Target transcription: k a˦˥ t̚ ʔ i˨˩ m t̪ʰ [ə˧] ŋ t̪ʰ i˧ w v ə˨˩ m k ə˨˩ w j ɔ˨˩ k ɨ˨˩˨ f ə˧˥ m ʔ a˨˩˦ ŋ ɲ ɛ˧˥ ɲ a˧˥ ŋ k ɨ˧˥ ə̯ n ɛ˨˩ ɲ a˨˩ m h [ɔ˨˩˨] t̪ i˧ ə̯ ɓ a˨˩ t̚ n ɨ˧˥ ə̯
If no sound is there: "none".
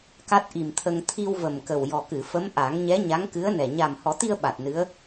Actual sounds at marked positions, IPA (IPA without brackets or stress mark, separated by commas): ə˧, ɔ˨˩˦